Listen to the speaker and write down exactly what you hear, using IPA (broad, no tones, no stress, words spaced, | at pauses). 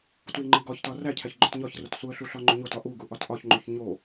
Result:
twiŋ͡ǃiɡɒçtɒ ræcʰæç ɡ͡ǃotɲɒçrot suə̯ɬu ɬɒŋ͡ǃuɲotɒ ʔuɡu ʔɒtʔɒçŋ͡ǃuç ɲo